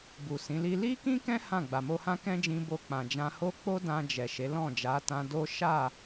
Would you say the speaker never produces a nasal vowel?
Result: no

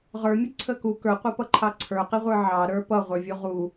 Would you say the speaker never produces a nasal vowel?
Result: yes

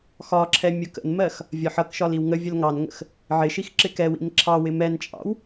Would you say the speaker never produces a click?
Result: no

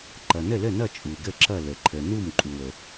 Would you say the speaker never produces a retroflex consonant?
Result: yes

